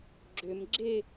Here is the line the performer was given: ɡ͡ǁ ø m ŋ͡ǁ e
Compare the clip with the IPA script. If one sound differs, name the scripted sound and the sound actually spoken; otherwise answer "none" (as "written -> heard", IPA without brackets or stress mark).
ŋ͡ǁ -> ɡ͡ǁ